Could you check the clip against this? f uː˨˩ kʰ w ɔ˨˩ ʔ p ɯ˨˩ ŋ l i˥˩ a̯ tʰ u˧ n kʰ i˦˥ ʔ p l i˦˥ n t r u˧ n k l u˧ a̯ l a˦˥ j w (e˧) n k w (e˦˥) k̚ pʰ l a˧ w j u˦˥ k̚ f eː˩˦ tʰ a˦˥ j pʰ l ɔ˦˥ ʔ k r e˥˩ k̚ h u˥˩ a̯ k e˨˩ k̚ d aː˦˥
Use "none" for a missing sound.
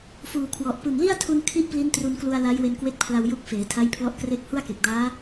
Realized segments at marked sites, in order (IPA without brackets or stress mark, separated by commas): e˧, e˦˥